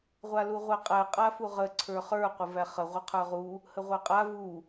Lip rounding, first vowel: unrounded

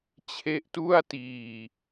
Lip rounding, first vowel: unrounded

